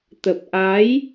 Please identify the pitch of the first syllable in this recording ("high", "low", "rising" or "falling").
low